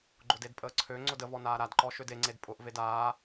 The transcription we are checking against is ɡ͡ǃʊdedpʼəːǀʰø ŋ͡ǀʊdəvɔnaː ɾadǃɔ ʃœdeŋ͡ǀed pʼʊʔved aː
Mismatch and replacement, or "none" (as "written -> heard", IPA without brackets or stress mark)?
œ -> ø